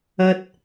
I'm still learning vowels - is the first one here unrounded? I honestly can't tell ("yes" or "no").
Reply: yes